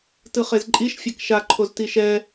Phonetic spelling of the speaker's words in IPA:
t ɯ χ e z ǃʼ i ʃ fʲ a k ʃ a ǃʰ o z t i ʃ ɛ

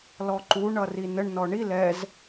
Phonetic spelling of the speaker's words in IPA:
l ɔ ǃ u ɳ ʌ r i n ə ɳ n ɔ ɳ i l ɛ z

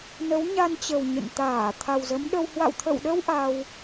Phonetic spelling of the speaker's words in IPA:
n ə˨˦ w ɲ a˧ n t͡ɕ ə˨˩ w ɲ ə̰˧˨ n t̪ aː˧˩ t̪ʰ a˨˩ w z ə˨˦ m ɗ ə˧ w h w a̰˧˨ w t̪ʰ ə̰˧˨ w ɗ ə˧ w ʔ a˧ w

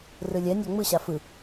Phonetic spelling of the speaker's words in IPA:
r ɯ lʲ ɛ nʲ a ŋ͡m ɯ ɕ a f ɯ

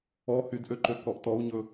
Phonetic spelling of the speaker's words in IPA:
ɔ h y d ʔ ø ǃ ø k ɔ ʔ t ɔ u̯ ɲ ɵ

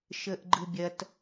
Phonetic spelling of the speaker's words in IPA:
ʃ əː ʔ ɡ͡ǃ ɯ bʲ ɐ t

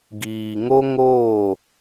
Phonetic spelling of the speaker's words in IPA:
ɡ iː˨ ŋ o˦ ŋ o˦˨

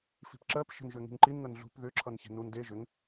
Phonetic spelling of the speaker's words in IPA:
f i̤ p ǁ ɜ p ʃ ə̤ n ʒ ʏ ŋ i̤ ŋ ǃ i n ŋ ə n ɮ ṳ p ð ʏ ǁʰ ʌ n ç e̤ n u n d e ʒ ʏ ŋ

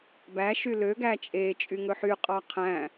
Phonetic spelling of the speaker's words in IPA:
b æ ʃ y l ø ɡ æ t͡ʃʼ e t͡ʃʼ y ŋ ɵ ħ y qʼ ɑ qʰ æ̃

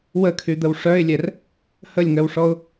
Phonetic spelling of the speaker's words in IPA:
w ə kʰ y d̪ ə w ʂ œ ɪ̯ lʲ ɛ r | h ə lʲ ŋ œ w ʂ ɔ ʊ̯

